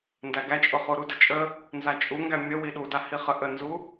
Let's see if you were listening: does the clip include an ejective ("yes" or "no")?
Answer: yes